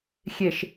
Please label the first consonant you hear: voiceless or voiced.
voiceless